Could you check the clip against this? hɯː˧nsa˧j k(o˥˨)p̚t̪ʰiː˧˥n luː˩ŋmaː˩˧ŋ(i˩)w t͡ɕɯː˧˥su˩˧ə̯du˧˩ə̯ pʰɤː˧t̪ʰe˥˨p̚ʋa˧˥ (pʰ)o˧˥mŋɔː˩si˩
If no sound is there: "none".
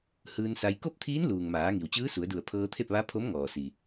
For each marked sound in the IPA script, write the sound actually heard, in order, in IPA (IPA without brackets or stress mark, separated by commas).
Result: o˥˨, i˩, pʰ